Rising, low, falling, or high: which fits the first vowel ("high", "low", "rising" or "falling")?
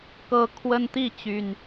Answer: rising